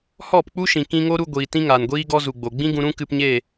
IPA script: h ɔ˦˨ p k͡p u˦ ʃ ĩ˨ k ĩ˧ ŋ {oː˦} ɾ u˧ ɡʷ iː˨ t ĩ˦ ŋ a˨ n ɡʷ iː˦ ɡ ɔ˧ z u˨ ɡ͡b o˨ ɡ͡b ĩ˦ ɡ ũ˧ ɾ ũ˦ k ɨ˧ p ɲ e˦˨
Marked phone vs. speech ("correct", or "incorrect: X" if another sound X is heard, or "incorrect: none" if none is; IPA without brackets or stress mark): incorrect: o˦